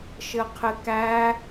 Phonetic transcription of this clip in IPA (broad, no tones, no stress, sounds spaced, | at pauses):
ʃ ɘ qʰ ɪ k æ